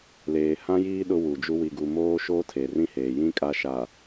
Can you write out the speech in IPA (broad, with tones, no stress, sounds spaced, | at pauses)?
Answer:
l eː˨ h ã˦ j iː˦ ɗ ʊ˦ w u˨ d͡ʒ u˦ w i˨ ɡ u˨ m oː˦ ʃ oː˦ tʰ e˨ r ĩ˦ h eː˨ j ĩ˦ kʼ a˦ ʃ a˨